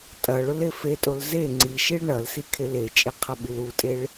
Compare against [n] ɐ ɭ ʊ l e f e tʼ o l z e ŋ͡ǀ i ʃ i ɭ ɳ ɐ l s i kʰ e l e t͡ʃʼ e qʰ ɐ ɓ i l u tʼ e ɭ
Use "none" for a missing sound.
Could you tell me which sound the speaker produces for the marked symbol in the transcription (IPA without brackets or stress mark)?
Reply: tʼ